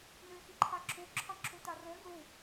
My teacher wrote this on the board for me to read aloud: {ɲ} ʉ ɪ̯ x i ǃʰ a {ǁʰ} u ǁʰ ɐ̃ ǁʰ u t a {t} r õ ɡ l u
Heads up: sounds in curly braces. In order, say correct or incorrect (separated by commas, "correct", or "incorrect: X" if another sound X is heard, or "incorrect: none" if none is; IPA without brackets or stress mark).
incorrect: n, correct, incorrect: none